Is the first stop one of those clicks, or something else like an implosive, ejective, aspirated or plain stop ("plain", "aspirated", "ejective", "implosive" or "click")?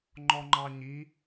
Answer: click